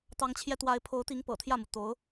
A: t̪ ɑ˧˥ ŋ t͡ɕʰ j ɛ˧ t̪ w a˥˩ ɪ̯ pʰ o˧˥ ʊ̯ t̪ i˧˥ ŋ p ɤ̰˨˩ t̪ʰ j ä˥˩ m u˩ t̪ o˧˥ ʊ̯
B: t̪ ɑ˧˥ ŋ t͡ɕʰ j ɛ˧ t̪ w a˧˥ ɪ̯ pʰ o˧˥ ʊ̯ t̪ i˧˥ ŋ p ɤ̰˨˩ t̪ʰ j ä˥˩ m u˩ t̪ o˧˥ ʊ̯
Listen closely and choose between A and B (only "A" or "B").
B